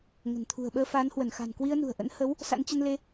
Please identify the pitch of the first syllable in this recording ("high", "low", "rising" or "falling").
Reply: low